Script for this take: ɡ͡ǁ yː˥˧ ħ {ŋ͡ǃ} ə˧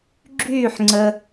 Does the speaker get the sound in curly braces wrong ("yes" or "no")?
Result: yes